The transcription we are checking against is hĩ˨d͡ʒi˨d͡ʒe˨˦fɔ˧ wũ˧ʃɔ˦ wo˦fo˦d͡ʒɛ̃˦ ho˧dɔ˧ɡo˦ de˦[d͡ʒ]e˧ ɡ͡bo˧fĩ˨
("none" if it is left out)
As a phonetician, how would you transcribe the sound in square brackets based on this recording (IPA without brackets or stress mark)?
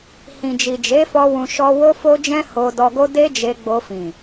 d͡ʒ